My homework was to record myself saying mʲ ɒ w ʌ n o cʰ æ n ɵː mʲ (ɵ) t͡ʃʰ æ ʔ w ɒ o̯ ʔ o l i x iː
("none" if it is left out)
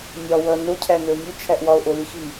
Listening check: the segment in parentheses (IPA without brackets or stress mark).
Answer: ɵ